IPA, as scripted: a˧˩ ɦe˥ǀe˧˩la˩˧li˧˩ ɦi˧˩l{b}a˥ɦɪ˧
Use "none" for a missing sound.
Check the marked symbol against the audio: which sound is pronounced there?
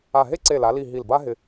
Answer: b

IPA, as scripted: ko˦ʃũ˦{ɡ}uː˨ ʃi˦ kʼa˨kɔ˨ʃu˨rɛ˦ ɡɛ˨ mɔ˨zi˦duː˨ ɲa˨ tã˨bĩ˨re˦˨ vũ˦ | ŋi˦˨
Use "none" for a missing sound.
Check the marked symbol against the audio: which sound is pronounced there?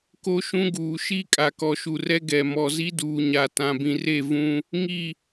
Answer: ɡ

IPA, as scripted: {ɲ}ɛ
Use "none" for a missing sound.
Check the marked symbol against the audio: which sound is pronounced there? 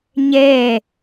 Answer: ɲ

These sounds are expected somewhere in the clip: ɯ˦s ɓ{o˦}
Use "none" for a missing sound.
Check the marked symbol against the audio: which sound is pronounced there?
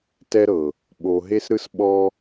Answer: ɔ˦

